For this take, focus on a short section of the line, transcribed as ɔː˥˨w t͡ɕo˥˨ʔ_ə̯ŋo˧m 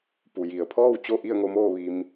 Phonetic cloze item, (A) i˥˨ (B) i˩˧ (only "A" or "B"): A